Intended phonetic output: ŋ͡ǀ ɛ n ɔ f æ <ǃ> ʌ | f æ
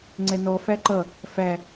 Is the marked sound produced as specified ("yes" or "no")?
yes